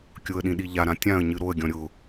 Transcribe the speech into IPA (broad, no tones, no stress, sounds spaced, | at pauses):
kʲ ʊ ə̯ ɗ ĩ ɗ i ʎ a ɾ ã tʲ ã ə̯ ɲ ɨ ɾ o ə̯ ɡʲ ɔ̃ ɾʲ ʊ